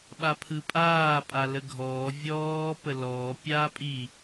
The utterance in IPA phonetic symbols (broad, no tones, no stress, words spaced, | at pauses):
ɓapʰɯpʼaː pʼaləɡʱɔː vʲɔː pəlɔː pʲaːpʼi